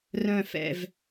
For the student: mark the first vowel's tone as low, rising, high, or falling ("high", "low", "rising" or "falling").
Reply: falling